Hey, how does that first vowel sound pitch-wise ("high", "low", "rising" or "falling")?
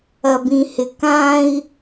high